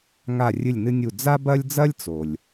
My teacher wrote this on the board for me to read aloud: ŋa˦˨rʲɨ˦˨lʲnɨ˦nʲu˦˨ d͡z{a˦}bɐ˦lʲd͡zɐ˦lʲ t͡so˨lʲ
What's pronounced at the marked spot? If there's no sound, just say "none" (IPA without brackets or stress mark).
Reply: a˦